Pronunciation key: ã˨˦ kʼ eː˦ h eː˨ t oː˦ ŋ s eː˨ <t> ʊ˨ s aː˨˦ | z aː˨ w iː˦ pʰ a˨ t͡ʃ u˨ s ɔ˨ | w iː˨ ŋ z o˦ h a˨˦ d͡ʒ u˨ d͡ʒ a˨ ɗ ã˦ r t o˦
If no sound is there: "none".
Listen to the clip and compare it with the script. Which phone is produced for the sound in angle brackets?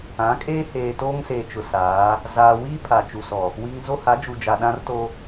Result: t͡ʃ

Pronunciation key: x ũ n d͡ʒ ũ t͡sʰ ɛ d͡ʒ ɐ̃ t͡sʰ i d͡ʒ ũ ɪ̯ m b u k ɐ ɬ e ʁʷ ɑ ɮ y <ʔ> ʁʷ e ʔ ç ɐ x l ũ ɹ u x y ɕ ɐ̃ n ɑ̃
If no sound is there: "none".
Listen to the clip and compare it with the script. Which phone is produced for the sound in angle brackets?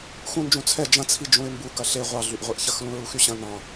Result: ʔ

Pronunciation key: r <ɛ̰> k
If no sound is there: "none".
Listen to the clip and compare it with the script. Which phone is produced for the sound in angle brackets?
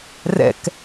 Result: ɛ̰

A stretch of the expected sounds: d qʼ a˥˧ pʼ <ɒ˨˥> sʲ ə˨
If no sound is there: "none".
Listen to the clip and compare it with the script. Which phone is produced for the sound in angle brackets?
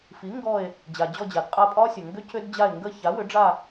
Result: ɒ˥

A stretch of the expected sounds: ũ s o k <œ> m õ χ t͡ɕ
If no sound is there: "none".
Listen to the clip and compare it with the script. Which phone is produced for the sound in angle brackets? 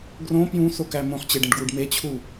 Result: æ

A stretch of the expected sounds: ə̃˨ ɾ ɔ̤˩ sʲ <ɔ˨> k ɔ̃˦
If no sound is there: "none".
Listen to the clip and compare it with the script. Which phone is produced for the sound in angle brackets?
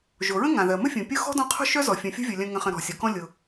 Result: ɔ˩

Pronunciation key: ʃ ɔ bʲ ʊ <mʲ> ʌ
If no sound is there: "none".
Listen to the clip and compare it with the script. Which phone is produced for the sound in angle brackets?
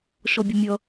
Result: mʲ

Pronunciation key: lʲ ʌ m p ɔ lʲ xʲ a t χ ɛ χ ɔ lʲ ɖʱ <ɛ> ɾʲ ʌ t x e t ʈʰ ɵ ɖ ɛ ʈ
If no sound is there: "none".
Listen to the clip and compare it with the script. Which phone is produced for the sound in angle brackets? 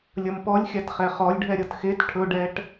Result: ɛ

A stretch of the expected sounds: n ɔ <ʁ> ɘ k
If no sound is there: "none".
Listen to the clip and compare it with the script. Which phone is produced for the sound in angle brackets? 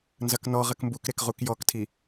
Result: ʁ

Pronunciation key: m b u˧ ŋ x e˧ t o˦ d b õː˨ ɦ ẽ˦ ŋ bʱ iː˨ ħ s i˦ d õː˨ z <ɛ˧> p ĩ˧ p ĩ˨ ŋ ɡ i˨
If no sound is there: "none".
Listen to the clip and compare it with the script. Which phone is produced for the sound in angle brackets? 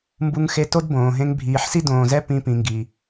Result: ɛ˦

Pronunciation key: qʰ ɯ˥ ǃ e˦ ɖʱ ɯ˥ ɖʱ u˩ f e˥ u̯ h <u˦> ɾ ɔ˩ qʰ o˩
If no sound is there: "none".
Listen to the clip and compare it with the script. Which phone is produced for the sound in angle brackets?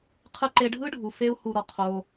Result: u˨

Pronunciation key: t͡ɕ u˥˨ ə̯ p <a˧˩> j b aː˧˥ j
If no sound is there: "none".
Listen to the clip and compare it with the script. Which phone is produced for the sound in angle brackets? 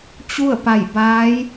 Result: a˧˩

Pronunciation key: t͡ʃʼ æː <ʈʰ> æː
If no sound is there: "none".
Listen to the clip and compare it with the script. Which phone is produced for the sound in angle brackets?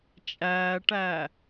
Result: ʈ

